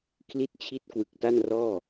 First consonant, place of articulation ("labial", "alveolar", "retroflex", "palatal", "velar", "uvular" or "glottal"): velar